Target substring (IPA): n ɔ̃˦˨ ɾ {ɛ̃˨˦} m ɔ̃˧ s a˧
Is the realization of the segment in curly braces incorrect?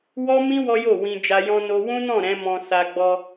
no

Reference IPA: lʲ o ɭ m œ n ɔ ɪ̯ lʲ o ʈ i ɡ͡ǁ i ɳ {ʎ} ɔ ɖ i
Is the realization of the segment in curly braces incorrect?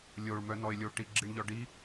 no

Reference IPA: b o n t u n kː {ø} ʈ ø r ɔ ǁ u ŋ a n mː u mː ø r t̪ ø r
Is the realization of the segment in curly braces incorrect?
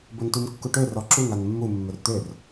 yes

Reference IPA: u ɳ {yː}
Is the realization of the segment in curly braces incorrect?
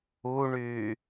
no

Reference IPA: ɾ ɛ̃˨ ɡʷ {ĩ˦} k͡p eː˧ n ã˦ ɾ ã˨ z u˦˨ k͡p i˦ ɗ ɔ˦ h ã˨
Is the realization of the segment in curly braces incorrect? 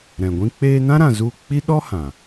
no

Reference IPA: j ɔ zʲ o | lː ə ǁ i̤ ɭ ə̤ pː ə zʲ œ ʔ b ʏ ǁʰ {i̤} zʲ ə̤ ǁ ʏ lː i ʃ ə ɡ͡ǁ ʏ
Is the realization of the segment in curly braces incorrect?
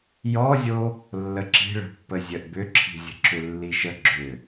no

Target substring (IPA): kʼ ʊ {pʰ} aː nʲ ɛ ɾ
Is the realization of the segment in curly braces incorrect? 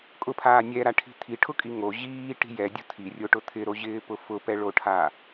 no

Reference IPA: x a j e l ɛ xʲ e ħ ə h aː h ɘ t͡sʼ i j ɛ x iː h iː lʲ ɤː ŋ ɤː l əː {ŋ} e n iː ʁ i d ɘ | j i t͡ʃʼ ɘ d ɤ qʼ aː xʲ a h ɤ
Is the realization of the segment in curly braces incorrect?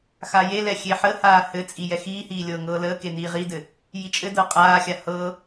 yes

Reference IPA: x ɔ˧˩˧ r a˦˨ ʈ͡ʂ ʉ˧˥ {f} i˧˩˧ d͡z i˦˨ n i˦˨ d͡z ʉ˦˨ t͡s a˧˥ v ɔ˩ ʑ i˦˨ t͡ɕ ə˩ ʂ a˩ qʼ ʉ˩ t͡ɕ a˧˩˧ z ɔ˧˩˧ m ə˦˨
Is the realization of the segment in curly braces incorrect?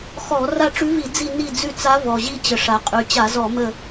yes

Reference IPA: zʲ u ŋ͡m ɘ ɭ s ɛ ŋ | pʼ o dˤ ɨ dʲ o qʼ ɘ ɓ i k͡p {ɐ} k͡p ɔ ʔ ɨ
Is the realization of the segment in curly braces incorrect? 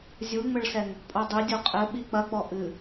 no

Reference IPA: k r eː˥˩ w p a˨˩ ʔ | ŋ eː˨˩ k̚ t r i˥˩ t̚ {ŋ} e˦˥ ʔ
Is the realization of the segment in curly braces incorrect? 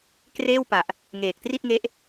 no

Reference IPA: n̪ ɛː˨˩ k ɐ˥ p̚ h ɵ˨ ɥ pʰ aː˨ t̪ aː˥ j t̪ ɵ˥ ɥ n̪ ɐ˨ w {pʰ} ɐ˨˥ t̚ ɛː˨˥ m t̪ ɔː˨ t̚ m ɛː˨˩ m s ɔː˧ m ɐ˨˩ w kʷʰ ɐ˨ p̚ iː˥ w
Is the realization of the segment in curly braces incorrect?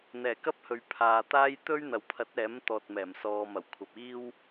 no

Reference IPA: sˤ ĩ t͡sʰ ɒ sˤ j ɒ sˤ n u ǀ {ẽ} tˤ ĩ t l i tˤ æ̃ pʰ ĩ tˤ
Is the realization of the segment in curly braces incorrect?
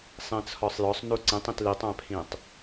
yes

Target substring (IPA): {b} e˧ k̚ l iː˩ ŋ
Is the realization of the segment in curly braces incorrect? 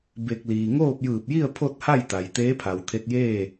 no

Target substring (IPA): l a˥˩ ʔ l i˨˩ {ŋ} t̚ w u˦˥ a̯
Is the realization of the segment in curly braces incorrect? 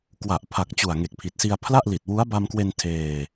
yes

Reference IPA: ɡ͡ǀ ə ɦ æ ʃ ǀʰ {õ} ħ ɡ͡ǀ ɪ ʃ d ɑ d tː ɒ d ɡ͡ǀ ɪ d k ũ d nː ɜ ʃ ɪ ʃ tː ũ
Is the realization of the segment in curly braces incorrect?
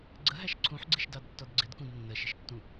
yes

